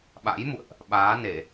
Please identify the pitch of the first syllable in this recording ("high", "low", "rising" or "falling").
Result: rising